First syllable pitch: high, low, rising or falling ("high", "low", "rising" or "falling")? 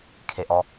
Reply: low